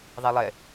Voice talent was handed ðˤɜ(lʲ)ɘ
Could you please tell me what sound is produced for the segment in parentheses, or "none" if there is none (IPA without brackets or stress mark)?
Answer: lˠ